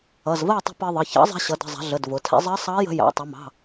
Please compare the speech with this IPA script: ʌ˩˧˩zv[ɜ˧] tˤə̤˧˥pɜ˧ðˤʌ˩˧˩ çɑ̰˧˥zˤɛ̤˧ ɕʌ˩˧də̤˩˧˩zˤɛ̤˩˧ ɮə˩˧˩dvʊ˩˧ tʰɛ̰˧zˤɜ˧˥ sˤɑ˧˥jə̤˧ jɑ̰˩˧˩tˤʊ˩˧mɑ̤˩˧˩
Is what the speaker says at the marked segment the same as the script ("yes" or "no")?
no